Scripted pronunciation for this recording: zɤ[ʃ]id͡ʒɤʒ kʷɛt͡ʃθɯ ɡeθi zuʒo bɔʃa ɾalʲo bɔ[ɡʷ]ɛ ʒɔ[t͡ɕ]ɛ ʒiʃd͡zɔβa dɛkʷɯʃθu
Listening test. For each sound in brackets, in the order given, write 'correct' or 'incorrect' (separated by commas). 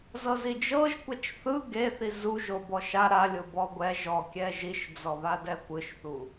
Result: incorrect, correct, incorrect